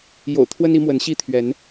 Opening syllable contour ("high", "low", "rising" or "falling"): low